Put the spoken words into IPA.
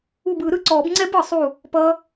u˧˩bɯ˨˩˦ ɾɯ˦˥ǀɔː˨˩˦b ŋ͡ǀɛ˦˥bɯ˨˩˦sˤu˧˩ | pʌː˦˥

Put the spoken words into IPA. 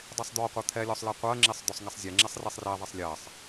dˤisˤd̪ɔqʷɛ t̪ʰɛlʲɔsˤlɜ qʷɜŋ͡ǁisˤ d̪ɔsˤŋɛsˤzʲɛ ŋ͡ǁɛsˤrisˤrɛðˤɛsˤ lʲɜsˤ

